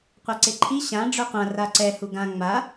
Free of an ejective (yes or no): yes